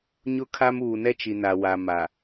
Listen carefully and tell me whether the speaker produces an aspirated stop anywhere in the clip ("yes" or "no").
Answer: yes